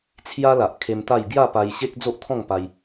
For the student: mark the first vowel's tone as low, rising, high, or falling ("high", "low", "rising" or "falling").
high